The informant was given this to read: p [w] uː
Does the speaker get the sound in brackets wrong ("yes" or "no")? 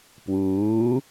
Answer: no